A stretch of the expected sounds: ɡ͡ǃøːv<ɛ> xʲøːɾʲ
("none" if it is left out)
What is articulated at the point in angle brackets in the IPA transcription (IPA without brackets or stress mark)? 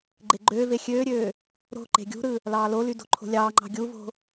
e